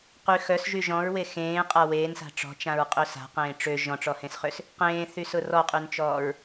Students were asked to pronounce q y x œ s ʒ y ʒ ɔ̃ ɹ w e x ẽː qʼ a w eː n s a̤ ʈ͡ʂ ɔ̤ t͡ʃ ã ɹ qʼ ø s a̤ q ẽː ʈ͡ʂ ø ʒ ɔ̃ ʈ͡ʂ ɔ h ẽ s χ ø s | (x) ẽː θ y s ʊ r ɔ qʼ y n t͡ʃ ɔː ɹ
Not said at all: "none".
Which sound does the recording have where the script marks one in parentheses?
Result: q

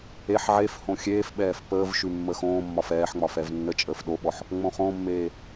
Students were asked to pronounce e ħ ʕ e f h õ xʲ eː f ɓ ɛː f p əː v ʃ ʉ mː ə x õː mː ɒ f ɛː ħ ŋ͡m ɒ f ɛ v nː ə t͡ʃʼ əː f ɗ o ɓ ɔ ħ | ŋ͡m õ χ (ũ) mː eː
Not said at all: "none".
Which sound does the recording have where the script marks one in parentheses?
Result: õ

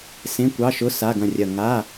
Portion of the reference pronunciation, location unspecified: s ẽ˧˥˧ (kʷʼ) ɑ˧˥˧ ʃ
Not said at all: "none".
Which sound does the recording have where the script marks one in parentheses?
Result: kʷ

